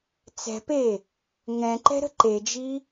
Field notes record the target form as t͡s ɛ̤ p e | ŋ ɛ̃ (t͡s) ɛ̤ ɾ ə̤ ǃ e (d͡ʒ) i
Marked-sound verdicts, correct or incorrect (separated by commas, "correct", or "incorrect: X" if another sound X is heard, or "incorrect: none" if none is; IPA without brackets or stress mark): incorrect: ǃ, correct